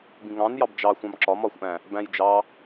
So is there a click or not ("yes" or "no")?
yes